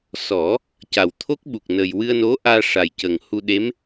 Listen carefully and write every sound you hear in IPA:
s ɔ˨˩˦ | c a˨˩ w t̪ʰ o˦˥ k̚ ɓ u˨˩ k̚ n ə˨˩ j w ɨ˧ ə̯ n o˧˥ ʔ aː˧ ʂ a˨˩ j c əː˨˩ ŋ h u˧ ɗ e˧˥ m

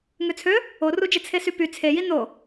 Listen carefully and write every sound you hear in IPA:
ŋ ø t͡sʰ ø | o r u d͡ʒ e t͡sʰ e s y p y t͡sʰ e j i n o

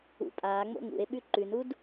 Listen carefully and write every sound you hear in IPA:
ṵ pʼ aː ŋ͡m o̰ ŋ ṵ e̯ ɓ ʉ ǃ ʉ n u d

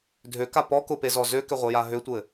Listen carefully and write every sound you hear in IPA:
dʱ ø k a p ɔ k ʊ p e z ɔ z ø k ʏ ʁʷ e j a ɦ ø tʷ ɘ

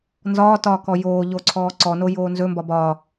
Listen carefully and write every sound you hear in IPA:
n z ɒː t ɒː k ɔ j oː ʎ o ǀʰ ɔː ǀ ɔ n o j oː n z ɵ m b ɒ b ɒ

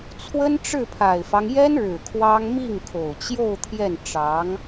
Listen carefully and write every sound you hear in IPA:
t͡sʰ w ə˥ n ʈ͡ʂ ɻ̩˥˩ pʰ a˨˩ ɪ̯ f ɑ˦ ŋ j ɛ˥ n ɻ ɻ̩˨˩ kʰ w ɑ˥ ŋ m i˥˩ ŋ kʰ o˨˩ ʊ̯ t͡ɕ j o˥˧ ʊ̯ t̪ʰ j ɛ˥˩ n ʈ͡ʂ ɑ˧˥ ŋ

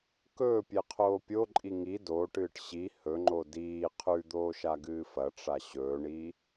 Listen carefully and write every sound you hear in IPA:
k ɵː pʲ e qʰ oː pʲ o ǃʼ i ŋ i d oː ʈ ɨː ʈ ɕ i h ɵ ŋ͡ǃ o d iː qʰ ʉ d̪ oː ʃ a ɡ ɨː f ɐ ʈ͡ʂ a ɕ ɵː ɳ i

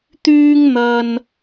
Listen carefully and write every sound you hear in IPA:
t̪ yː˥ ŋ n̪ ɐ˧ n

